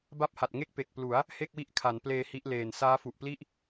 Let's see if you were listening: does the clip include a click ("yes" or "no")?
no